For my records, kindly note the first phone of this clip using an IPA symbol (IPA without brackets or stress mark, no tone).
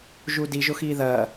ʒ